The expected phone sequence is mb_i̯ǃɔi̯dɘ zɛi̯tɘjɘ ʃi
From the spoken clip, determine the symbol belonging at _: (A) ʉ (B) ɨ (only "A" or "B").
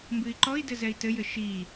B